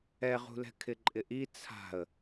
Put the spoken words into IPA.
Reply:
ɛ ʁ ṳ l ɛ̤ kʰ ɪ ǃʼ ɪ ʔ i t͡sʰ a̤ ə̯

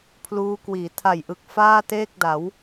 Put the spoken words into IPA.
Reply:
pʰ l uː˦˥ k w iː˩˦ tʰ a˨˩ j ʔ ɯ˨˩ k̚ f aː˥˩ t eː˥˩ k̚ d a˩˦ w

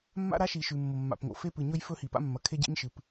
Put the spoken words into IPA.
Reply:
mː a̰˦ ɾ a˦ ʃ i˨ ʃ ʉ˨ mː o˨ mː a̰˨ p ŋ o̰˨ f e˦ p ɨ˨ ɲ ɵ˦ j f ɵ˦ h i˨ p a̰˦ mː ɐ˨ kʰ e˦ ɟ ḭ˦ ɲ ʃ ɨ˨ p

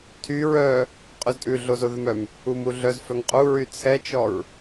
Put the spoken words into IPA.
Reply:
tʰ y ɹ œ | qʼ ʉ z tʼ ʉ ɮ o z o ð ɵ m œ m | u m u ɮ œ z f œ ŋ qʼ u ɹ y t͡sʰ ɛ t͡ʃ ɔ ɹ

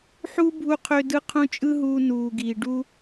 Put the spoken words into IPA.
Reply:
ħ u˦ bʱ u˧ qʰ ø˧ d ɯ˧ qʰ ũ˧ t͡ʃʼ ɯ˦ ɦ uː˧ n uː˨ ɡ iː˨ ɖ u˦

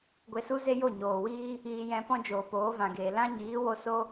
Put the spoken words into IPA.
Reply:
ɡʷ e˧ s u˦ z e˦ j o˦˨ ɲ oː˨ w iː˦ | iː˧ j ɛ̃˧ p ɔ̃˦ d͡ʒ oː˨ p oː˨˦ v ã˨ ɡ eː˨ l ã˦ ɲ iː˨˦ w o˧ s o˧

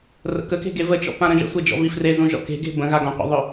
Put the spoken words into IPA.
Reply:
r ə̰ k ə k e̤ ɡ e v ə t͡ʃ ɔ̰ p ã ɾ ə̃ ʒ ə̰ sʷ e d͡ʒ ɔ̰ v i f r e z ũ ʒ ɔ̰ k e̤ ɡ e̤ b ə̃ ɣ a ɡ ɔ̃ qʷ ə̰ ðˤ ɵ

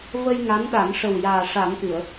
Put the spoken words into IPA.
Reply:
v ə˧ j ŋ a˧˥ n ɗ a˨˩˦ n ʂ ə˨˩ w j aː˨˩ ʂ a˨˩˦ n ʔ ɨ˨˩˨ ə̯

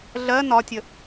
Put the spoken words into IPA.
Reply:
ɮ ɜ n ɒ tʲ ə

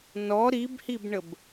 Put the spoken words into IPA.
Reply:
n ɔ ɾ i b h i b ɳ ə b

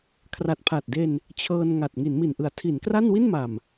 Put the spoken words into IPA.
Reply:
kʰ r a˨˩ t̚ pʰ a˨˩ t̚ d e˧ n | t͡ɕʰ ɤː˧ n ŋ a˨˩ t̚ ŋ i˩˦ n m i˨˩ n ʔ ɯ˨˩ a̯ tʰ i˩˦ n k r a˥˩ n w i˥˩ n m a˨˩ m

